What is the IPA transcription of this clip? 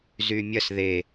z y mʲ ɐ s ð e

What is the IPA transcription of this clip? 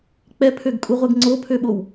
k͡p ɛ pʰ ø ɡ kʼ u ʁʷ ɛ ɡ ŋ͡ǀ o pʰ ø ɓ o w

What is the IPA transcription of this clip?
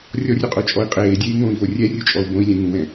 rʲ ɔ rʲ o qʼ o t͡ʃʼ ɔ i̯ qʼ eː dʲ eː ŋ õː i̯ v o rʲ ɛ rʲ u t͡ʃʼ ɔ u̯ b õ i̯ lʲ ɛ̃ ŋ ũ w ɛ̃

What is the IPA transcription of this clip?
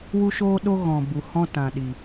w u˦ ʃ oː˦ ɗ o˦ ɣ ɔ̃˨ b u˨ h ɔ̃˦ t ã˨ ɗ i˨

